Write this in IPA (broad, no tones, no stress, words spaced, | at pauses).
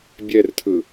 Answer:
bʲɛrtʰɯ